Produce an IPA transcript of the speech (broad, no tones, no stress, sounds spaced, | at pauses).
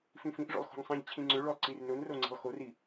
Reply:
f ĩ f ĩ ʔ ʐ o̰ lˠ x o̤ ŋ sˤ ĩ ʎ t͡ɕʰ ĩ ŋ͡ǀ ʏ ɭ o lˠ ǀ i r n ʊ n r o ŋ͡ǀ e̤ lˠ x o r i